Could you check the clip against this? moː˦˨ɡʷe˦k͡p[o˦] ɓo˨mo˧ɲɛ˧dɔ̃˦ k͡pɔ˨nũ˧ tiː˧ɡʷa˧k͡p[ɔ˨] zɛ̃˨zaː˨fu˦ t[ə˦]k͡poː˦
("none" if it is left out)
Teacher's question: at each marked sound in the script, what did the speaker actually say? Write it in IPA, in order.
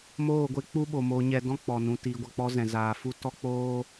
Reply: u˦, ɔ˦, ɔ˦

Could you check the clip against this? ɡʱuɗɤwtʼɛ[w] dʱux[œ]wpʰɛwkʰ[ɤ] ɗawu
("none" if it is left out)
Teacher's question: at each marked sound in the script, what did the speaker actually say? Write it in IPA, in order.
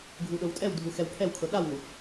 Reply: w, ɛ, ɤ

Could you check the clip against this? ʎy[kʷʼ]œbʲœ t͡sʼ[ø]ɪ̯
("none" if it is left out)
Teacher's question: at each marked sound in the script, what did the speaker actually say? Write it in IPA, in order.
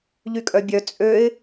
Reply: kʼ, ø

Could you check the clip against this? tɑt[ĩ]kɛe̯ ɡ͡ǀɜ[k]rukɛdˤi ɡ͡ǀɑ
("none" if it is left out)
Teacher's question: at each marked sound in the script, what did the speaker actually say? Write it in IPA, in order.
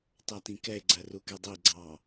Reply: ĩ, none

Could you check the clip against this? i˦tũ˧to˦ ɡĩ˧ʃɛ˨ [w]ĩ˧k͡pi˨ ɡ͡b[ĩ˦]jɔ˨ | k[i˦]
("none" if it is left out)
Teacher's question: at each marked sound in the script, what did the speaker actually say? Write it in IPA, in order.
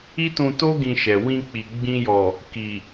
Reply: w, ĩ˧, i˨

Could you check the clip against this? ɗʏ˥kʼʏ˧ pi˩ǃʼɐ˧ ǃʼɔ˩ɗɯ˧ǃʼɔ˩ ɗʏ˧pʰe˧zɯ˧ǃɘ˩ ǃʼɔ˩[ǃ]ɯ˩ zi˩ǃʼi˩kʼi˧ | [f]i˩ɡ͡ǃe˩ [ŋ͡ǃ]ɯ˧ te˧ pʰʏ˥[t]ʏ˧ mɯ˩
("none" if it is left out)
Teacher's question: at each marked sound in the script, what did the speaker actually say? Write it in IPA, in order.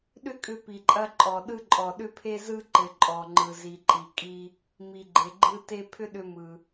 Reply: ŋ͡ǃ, m, ɡ͡ǃ, ɗ

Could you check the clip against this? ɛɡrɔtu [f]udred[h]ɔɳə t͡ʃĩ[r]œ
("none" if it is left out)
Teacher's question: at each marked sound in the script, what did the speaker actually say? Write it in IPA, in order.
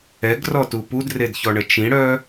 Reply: p, ç, ɽ

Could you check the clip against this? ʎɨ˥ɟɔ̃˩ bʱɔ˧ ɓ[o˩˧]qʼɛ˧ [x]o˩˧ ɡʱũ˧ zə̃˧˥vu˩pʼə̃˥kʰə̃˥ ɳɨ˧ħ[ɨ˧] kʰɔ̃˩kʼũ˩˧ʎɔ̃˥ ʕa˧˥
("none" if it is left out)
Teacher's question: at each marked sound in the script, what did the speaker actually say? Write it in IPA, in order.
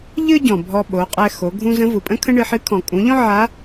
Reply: o˩˧, x, ɨ˧˥

